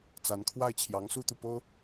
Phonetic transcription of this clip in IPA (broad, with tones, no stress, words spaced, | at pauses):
t͡sa˧˥n kʰwa˥˩ɪ̯t͡ɕʰjɑ˧˥ŋsu˥t̪u˨ po˥ʊ̯